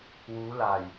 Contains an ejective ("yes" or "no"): no